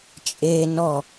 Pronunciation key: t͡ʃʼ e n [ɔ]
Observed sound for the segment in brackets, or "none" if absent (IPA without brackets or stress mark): ɔ